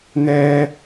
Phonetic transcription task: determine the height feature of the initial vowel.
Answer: mid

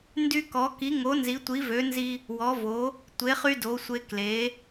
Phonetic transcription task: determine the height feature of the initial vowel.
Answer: high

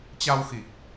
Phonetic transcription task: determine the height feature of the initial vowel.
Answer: low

